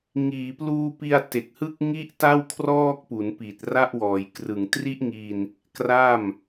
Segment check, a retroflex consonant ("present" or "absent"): absent